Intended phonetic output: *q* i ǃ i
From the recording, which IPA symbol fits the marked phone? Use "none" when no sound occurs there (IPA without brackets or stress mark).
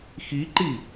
x